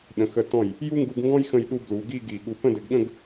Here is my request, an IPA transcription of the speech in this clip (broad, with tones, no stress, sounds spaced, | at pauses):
ɗ ə̃˩˧ x ə˧˩ t ɔ̃˧˩ j | j u˥ ŋ ɡ u˧ ɡ ŋ ɡ ɔ̃˥ j x ə̃˥˧ j ɗ u˥ b l u˩˧ ɡ i˥˧ ɡ i˧˩ ɠ u˧ p ə̃˥˧ d ɘ˧ ɡ ɠ ə̃˥˧ ɡ